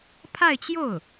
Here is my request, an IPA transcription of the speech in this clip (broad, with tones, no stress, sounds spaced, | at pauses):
pʰ a˥˧ ɪ̯ t͡ɕ j o˥˩ ʊ̯